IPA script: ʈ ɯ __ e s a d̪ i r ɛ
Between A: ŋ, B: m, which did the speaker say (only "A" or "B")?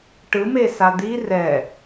B